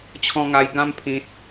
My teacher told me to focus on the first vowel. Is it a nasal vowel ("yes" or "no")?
yes